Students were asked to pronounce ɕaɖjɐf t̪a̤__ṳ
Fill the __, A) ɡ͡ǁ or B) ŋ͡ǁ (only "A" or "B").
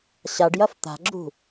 A